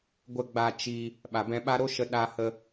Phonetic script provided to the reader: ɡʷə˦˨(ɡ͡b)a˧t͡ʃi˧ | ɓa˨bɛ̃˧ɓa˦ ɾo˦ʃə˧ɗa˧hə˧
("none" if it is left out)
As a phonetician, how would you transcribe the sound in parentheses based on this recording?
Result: ɡ͡b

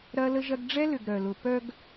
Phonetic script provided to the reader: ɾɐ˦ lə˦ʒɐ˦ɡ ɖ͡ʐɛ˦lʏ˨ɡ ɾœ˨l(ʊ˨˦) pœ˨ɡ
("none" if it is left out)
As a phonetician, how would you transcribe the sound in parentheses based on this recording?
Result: ʊ˨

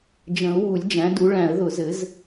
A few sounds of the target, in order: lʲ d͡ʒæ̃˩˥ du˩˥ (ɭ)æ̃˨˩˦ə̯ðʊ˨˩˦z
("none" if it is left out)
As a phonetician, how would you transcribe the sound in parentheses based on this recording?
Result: ɭ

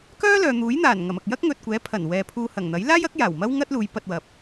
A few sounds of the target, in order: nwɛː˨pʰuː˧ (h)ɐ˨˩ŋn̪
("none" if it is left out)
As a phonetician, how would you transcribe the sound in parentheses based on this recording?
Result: h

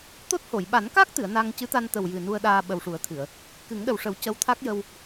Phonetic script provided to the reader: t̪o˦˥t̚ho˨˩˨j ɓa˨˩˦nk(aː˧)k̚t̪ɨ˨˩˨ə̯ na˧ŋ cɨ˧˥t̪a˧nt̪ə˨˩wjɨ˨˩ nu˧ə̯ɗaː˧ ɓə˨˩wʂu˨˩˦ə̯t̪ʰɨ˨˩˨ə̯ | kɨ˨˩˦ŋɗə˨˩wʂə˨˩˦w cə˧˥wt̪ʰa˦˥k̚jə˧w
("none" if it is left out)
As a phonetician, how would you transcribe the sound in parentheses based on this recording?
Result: aː˦˥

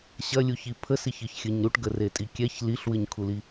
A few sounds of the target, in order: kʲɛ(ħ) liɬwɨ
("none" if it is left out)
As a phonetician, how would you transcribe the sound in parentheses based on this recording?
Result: ç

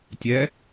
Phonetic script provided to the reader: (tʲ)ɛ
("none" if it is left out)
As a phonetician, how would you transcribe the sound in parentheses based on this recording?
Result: tʲ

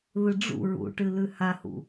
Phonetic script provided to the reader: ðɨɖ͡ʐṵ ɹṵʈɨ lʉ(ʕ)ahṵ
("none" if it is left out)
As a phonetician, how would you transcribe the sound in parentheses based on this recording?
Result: h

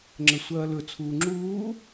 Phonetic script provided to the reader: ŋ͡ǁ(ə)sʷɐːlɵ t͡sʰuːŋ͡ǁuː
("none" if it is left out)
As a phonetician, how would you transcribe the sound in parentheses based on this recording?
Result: ə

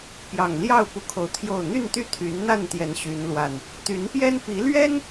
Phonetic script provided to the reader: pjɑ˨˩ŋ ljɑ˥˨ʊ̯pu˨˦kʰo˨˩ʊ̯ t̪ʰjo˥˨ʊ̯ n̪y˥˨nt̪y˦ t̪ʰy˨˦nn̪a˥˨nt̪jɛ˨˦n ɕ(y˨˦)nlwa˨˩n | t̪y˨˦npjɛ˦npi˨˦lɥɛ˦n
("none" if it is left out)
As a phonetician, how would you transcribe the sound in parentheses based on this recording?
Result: y˨˦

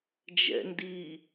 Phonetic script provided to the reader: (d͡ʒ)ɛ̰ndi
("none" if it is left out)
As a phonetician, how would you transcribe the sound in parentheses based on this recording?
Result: d͡ʒ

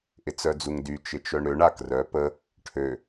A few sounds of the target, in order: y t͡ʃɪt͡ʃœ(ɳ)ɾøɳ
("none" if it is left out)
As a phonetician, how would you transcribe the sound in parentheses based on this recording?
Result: ɳ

